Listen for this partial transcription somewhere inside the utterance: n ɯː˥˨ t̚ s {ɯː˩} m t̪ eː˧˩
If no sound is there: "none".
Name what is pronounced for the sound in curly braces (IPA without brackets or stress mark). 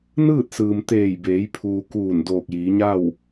ɯː˩